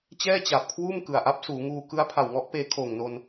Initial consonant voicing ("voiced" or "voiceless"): voiceless